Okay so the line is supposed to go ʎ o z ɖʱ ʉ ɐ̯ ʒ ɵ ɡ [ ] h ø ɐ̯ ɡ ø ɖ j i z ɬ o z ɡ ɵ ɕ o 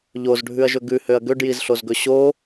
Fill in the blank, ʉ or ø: ʉ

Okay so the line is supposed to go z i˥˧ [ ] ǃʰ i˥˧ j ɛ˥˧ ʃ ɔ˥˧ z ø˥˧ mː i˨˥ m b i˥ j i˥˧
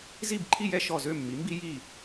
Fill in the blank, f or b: b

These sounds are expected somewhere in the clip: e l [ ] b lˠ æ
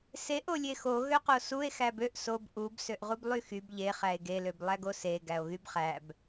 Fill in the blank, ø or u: ø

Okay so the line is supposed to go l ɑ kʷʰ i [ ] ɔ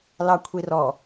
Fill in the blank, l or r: r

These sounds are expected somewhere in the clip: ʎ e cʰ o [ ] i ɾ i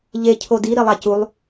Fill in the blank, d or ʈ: d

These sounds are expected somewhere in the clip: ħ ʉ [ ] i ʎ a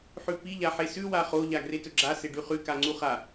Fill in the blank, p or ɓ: p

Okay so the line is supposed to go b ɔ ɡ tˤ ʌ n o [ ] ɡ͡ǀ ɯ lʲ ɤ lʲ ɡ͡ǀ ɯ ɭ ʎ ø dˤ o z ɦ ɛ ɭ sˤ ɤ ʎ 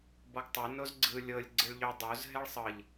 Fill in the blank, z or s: z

